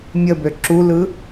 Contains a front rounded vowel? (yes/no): yes